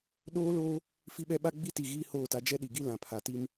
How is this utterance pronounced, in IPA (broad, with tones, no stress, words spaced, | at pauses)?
ɗoː˦loː˦ | fi˦ɓɛ˦ ɓa˦ɡ͡bi˦ti˨ ɣiː˦hoː˦˨ta˦ d͡ʒɛ˦ɗi˨ɡi˦ lã˨pʰa˨ti˦m